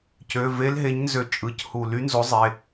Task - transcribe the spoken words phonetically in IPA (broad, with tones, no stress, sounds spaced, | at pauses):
c ø˩˧˩ v e˦˥ l ɦ e˨˥ ɲ n z ø˧˩ t͡ʃʼ ɯ˨˥ c h u˧˩ l y˦˥ n z o˨˥ zˤ e˩˧˩